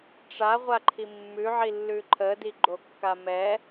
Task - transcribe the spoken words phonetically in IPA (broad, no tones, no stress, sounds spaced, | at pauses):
ʈ͡ʂ a ʁʷ a ǃʰ i mː ʉ ʕ i lː ʉ ǃʰ ə d i ɡ͡ǃ o kː a m ɛ